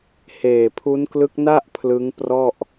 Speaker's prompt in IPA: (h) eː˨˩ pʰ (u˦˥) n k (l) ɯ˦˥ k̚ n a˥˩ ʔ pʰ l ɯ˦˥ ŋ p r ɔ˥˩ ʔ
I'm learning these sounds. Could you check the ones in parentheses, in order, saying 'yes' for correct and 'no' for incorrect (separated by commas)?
yes, yes, yes